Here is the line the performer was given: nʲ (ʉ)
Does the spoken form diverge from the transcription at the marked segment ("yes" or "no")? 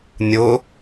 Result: yes